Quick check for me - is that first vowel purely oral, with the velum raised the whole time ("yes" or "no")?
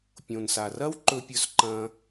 no